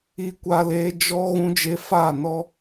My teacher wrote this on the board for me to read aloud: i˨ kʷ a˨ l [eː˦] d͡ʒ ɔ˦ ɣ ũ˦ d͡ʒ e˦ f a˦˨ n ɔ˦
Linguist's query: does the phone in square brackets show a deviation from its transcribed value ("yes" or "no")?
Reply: yes